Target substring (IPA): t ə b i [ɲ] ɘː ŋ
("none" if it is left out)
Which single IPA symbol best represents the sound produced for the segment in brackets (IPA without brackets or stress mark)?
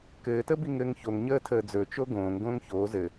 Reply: ŋ